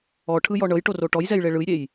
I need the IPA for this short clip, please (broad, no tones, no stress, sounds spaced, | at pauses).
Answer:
ɔ ʈʰ ɯ j ɔ ɳ ɤ j ʈ o r o ʈ ɔ j z ɛ j ɭ e ɭ ɯ j ɾʲ e j